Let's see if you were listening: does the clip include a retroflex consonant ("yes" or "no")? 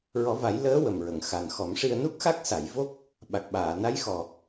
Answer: yes